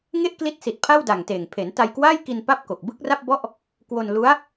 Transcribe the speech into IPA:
ŋ e˥˩ ʔ k l i˦˥ t̚ s i˨˩ t̚ pʰ a˥˩ w d a˨˩ ŋ t eː˨˩ ŋ pʰ e˩˦ n t a˧ j k w aː˥˩ j k i˧ n p a˥˩ p̚ k o˨˩ k̚ b ɯ˥˩ k̚ r a˥˩ p̚ b ɔ˥˩ ʔ | k w o˧ n l u˦˥ a̯

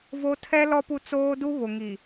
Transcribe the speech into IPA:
v o˦ tʰ ɛ˦ l ɔ˦ p u˦ t͡s oː˦ d u˦ β ʊ˨ ŋ i˨

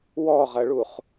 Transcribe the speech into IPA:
w ɔ ʁ ɐ ɭ u χ

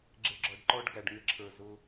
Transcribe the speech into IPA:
ɡ͡ǁ ɪ˧ ɡ͡ǁ ɔ˨ ɖ ǃ ɔ˦ ɖ ɡ æ˨ ɖ ŋ ɪ˧ ǁʰ ə˞˨ z ʊ˧

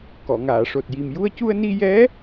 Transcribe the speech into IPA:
k ɔ˨˩˨ ŋ aː˨˩˨ ʂ o˨˩ t̚ j i˨˩ m j u˧ ə̯ c u˧ ə̯ n i˧ j ɛ˧˥

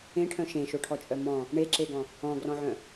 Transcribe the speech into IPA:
ẽ ʈʰ œ̃ ʃ ẽ ʃ o ʈʰ ɔ t͡ʃʼ œ m ɔ̃ | ɳ e ǁ e ɡ ɔ̃ | ɔ̃ ɡ r ɔ̃ ʕ œ̃

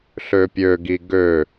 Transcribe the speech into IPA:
ɬ ø pʲ ø ɡ i ɡ ø

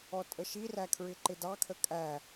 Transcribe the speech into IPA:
ɔ tʼ ə ʃ i r æ kʰ ɹ ɪ ǃ ɪ d ɑ kʰ ə kʼ æ

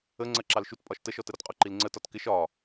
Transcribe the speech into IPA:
ə ŋ͡ǀ ɜ ǁ ɑ l ʃ u t pʼ ɒ ʃ t ə ʃ ɔ t ə ɾ ɔ t qʼ ʊ ǃ i l ŋ͡ǀ ə t ɒ t k ɪ ʃ ɒ

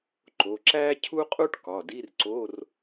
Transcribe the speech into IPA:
ǃ o˩˧˩ ǁ æ˥ cʰ u˥ qʼ u˥ ʈ k ɒ˩˧˩ d i˧˥˧ r ǀ o˧˥˧ r

